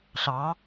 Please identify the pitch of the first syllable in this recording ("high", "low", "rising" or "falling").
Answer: rising